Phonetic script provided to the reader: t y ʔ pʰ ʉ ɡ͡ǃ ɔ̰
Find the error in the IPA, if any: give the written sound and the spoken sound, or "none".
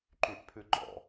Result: t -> ǃ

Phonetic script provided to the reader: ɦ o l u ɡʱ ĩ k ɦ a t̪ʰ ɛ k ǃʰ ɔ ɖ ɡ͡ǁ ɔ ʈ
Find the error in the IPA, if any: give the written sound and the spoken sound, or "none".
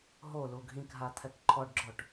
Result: none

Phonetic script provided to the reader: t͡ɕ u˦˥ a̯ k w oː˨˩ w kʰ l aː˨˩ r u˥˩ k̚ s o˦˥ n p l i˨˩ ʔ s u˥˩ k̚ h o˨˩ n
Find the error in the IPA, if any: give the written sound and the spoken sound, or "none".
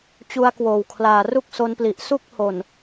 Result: none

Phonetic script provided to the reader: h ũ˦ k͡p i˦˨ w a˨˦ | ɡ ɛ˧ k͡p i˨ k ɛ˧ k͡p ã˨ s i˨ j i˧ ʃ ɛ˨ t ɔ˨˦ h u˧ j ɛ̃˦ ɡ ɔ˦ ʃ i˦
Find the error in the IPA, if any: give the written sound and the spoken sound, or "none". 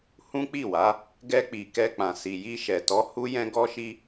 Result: u˧ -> u˦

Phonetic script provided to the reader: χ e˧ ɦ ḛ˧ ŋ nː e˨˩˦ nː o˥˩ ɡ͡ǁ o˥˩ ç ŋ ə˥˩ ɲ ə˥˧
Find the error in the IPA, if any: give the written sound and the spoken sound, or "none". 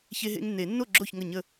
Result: χ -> ç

